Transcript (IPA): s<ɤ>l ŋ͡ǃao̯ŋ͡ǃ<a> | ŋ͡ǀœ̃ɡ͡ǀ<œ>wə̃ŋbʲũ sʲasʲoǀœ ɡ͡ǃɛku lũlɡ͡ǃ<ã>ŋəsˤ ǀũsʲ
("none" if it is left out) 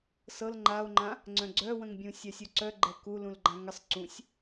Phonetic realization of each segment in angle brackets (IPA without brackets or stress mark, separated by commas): ɤ, ã, œ, ã